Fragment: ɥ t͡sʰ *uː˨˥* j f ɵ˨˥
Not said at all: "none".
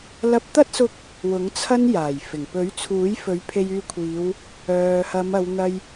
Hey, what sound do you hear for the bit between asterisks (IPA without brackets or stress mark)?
uː˨˥